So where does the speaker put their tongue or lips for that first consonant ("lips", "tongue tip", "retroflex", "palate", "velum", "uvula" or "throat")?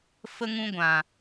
lips